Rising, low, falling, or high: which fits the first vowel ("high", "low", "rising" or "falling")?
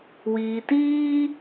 low